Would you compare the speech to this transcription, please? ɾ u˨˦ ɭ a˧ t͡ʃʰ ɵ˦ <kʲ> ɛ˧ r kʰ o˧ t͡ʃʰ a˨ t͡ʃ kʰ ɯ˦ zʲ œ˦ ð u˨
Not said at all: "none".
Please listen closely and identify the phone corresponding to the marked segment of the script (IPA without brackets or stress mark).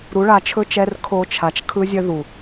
t͡ʃ